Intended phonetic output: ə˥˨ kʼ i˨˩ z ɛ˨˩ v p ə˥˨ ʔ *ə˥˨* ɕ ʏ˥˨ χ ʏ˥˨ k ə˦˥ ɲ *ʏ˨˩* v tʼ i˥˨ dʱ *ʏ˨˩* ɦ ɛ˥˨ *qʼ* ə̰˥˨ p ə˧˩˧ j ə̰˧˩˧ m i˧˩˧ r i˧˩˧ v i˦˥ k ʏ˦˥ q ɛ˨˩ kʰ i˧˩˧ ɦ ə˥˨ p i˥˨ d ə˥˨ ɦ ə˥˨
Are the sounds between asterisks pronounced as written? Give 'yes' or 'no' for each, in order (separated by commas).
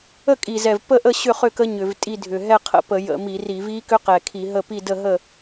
yes, no, yes, no